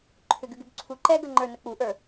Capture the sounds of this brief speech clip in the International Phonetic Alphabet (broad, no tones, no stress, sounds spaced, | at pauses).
ǃʰ ʏ ɡ ʉ ɡ ʉ b ǀʰ u ǃ ɛ ɡ ə ŋ͡ǃ ə˞ n ə k͡p u ʔ ə˞